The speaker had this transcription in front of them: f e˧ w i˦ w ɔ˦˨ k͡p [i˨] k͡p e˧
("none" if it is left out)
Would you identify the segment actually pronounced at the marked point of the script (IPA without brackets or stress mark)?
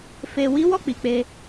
i˨